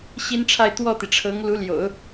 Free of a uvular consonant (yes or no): yes